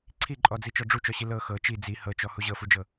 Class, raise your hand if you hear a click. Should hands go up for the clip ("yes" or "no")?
yes